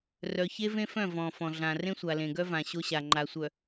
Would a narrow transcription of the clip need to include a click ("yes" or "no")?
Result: yes